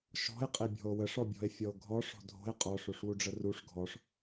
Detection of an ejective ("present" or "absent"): present